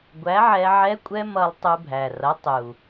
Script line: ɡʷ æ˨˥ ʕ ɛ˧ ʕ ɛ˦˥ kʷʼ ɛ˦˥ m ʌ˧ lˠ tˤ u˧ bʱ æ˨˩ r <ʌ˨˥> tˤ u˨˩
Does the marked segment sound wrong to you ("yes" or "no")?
no